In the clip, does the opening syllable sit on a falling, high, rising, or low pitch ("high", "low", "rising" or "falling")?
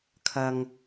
low